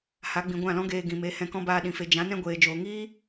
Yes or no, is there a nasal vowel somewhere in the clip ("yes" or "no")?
yes